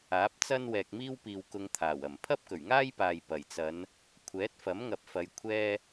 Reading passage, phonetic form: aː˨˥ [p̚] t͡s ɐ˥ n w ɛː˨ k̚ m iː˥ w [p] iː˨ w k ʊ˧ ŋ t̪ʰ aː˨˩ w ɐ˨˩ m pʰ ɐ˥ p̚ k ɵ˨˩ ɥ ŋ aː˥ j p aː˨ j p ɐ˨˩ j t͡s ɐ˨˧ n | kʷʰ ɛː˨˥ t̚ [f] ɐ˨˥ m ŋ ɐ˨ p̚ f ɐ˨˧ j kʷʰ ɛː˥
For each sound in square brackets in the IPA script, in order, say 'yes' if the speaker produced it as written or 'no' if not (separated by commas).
yes, yes, yes